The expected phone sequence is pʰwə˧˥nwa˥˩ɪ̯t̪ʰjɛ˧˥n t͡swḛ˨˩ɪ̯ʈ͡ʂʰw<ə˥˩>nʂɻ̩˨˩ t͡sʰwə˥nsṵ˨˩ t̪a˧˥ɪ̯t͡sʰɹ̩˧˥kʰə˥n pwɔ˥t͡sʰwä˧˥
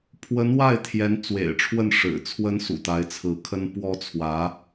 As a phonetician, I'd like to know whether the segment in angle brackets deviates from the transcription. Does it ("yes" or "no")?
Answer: no